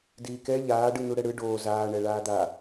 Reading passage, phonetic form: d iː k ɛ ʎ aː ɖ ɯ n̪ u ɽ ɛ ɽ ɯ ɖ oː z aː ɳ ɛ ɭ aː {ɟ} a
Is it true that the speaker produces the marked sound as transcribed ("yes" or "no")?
no